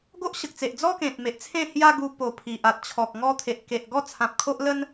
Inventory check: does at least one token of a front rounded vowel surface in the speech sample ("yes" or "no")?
no